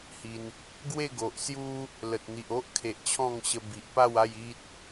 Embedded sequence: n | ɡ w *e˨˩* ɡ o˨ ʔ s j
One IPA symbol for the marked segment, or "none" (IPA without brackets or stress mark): e˥˧